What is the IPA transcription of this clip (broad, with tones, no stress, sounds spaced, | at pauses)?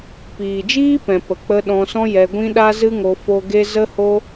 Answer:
p iː˨ d͡ʒ iː˦ p ɛ̃˨ p ə˨ k͡p ə˧ ɗ ɔ̃˧ s ɔ̃˦ j ɛ˧ ɡʷ ĩ˦ ɗ a˦ z ɨ˦ ŋ o˧ f o˧ ɡ e˦ z ə˦ h o˦